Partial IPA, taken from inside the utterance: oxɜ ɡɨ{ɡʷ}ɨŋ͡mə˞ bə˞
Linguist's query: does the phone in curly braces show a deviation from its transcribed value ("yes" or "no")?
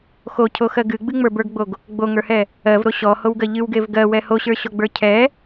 yes